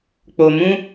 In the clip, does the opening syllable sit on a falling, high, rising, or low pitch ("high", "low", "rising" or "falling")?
low